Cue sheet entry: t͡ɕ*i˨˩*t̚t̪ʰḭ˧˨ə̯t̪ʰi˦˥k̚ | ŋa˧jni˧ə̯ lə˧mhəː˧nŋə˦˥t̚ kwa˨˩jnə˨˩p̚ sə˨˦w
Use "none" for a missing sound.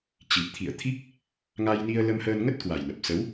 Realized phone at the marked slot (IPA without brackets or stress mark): i˨˩